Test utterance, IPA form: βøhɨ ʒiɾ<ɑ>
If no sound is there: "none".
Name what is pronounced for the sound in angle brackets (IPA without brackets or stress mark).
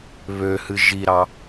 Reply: ɑ